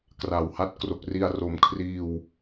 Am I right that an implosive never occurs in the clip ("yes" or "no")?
yes